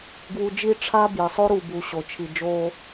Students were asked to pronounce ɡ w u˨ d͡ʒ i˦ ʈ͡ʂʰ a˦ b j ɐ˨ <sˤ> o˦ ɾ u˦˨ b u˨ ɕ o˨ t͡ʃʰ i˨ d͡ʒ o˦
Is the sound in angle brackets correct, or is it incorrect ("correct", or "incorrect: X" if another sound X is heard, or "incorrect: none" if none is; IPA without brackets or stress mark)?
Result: correct